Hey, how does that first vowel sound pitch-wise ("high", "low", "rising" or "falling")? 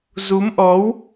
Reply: rising